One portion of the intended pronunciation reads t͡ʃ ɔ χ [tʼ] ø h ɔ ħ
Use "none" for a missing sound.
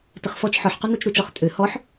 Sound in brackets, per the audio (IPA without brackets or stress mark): tʼ